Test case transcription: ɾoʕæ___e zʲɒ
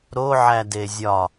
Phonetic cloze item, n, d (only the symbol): d